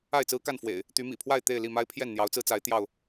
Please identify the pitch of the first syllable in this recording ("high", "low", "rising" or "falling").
falling